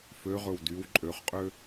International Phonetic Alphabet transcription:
f ø ʁ ɵ w d y w ǃʼ ø χ qʼ ø

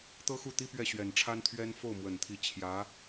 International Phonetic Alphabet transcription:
t̪ ɤ˥ x u˥˩ t̪ i˥ p ɥ ɛ˥˩ ɕ ɥ ɛ˨˩ n ʈ͡ʂʰ a˥ n t̪ʰ ɥ ɛ˥ n f o˥˩ ʊ̯ m w ə˨˩ n t̪ʰ i˧˥ t͡ɕʰ j ä˧˥

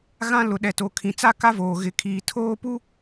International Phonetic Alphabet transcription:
ɣ ã˦ l ʊ˨ ɗ ɛ˨ t o˨ kʰ ĩ˨ t͡s a˦ k a˦ v oː˨ ɣ ɪ˨ kʰ iː˨ tʰ oː˦ p u˦

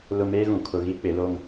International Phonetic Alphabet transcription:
l ʊ˨ m eː˦ ɣ ũ˨ kʰ ʊ˨ ɣ i˦ k͡p ɪ˨˦ l o˦ ŋ

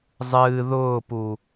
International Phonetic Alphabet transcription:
zˤ ɨː ð ʊː p u

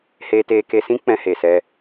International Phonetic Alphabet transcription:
h eː˧ t eː˧ k e˧ s ĩ˦ k͡p ɛ̃˧ h e˨ s ɛ˧

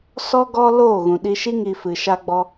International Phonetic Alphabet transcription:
s ɔ˦ ɡ ɔ˦ l oː˦˨ ɣ ũ˨ ɗ i˧ ʃ i˦ ŋ i˧ f ɨ˨ ʃ a˦ ɡ͡b ɔ˦

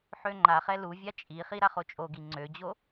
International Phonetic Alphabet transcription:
ħ ø ŋ͡ǃ a χ ɛ l u vʲ a t͡ʃʼ i χ i ɾ a χ o t͡ʃʼ o ɡ i ŋ͡ǀ ø d͡ʑ o

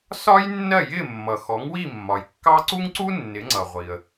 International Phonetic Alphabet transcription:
s ɒ˥ j nː ɜ˥˩ j ɪ˥˩ mː ʌ˩ x ɔ˩˥ ŋ w i˥˩ mː ɒ˩ j kː ɑ˥ ǀ u˥ ŋ ǀ u˥ nː ɪ˩˥ ŋ͡ǀ ʌ˩ ʁʷ i˩ ə̯

